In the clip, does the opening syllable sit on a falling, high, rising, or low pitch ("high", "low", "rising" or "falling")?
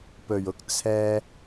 low